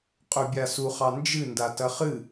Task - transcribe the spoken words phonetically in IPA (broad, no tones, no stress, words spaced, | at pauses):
qʼɵbʲasuχɑ nd͡ʒɨndatɐ χɨ